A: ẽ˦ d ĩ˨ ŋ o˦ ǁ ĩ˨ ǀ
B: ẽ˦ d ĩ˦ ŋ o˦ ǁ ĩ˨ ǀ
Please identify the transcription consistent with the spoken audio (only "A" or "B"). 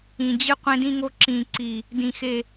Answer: B